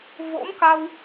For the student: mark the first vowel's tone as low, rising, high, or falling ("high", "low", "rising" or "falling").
rising